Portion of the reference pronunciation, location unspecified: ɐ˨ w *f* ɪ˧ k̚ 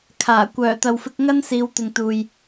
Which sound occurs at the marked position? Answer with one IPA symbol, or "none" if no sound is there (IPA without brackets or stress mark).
f